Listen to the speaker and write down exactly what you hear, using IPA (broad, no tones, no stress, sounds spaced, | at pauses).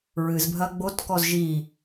ɹ ɨ z bʱ ɐ ɡ͡b o t k ɔ z ʒ i